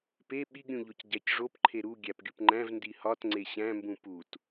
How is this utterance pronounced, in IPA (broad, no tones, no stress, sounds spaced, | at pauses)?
p e ɓ i ɡ ɾʲ ũ ʎ o c ɟ æ c ʐ o p ǃʰ e ɾ u ɡʲ æ p ɡʲ u p ŋ͡ǃ æ̃ v n d i h ɒ t ŋ͡ǀ e ɕ æ̃ m b ũ p u t